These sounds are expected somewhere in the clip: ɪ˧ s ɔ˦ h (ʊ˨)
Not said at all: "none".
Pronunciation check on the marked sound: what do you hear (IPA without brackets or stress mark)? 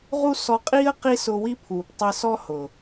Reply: ʊ˨